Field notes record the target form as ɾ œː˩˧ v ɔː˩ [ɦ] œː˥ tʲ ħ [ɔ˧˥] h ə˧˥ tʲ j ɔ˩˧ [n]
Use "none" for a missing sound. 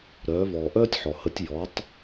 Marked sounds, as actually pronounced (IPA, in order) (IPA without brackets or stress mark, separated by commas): ʔ, ɔ˩, tˤ